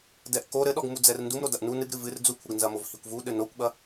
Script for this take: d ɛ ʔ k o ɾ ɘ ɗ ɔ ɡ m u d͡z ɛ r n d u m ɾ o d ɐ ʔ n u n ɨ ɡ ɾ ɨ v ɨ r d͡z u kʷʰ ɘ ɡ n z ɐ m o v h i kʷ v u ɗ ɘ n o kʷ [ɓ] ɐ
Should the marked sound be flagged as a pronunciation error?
no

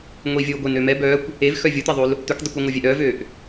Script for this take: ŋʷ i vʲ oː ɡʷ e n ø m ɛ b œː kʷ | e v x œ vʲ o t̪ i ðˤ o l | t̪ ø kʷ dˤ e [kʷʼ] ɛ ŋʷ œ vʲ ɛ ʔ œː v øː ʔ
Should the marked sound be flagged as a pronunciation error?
yes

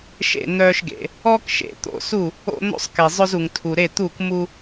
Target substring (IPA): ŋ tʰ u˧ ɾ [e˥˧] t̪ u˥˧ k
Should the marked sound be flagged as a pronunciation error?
no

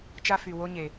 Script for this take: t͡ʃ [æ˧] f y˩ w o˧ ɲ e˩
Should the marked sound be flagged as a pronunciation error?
yes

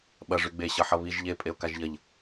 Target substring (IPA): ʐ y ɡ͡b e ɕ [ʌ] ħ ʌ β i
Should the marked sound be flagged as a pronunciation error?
no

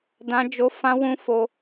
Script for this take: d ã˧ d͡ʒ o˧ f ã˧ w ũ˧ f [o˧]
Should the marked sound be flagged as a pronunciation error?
no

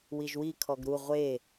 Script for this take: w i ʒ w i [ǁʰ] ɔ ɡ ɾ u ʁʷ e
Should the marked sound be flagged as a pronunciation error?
yes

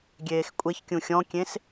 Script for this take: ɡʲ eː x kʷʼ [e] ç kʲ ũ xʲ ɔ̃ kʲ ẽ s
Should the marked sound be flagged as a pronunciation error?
no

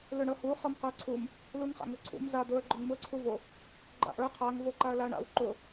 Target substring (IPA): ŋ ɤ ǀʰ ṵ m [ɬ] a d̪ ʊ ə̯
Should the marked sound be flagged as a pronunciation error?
yes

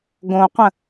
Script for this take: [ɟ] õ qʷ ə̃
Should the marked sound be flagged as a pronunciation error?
yes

